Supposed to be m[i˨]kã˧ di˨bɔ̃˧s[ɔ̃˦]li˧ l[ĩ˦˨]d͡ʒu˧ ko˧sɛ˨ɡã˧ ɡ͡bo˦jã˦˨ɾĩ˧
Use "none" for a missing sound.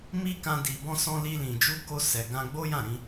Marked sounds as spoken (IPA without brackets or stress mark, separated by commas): i˦, ɔ̃˧, ĩ˨